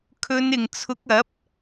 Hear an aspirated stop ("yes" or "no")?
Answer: yes